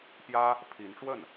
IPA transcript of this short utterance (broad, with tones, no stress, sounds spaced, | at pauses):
p j ä˥ | pʰ i˧˥ n ʈ͡ʂ w ə˥˩ n